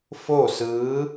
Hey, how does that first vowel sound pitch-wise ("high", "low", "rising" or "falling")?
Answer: falling